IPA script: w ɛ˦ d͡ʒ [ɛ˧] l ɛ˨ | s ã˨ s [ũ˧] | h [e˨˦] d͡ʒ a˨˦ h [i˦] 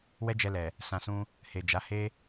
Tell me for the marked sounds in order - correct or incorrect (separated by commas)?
correct, correct, incorrect, incorrect